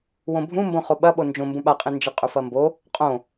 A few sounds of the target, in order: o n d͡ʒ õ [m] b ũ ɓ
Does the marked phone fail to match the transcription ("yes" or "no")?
no